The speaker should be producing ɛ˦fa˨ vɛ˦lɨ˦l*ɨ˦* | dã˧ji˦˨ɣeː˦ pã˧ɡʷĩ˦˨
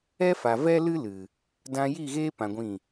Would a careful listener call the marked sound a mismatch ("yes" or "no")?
yes